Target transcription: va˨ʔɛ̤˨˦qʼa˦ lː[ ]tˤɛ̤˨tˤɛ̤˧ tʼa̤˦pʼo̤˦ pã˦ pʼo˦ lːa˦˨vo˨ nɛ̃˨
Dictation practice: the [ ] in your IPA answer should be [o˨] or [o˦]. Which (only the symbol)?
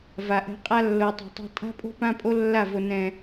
o˨